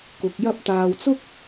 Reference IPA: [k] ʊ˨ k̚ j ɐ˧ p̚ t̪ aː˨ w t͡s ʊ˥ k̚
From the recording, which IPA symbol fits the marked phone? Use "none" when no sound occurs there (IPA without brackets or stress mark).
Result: k